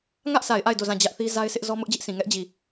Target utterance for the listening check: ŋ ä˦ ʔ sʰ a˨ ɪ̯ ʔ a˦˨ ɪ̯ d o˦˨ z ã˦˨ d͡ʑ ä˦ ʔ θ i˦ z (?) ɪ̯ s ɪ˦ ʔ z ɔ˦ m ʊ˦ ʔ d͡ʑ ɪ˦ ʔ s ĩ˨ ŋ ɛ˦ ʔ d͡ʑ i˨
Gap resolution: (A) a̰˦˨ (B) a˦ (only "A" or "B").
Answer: B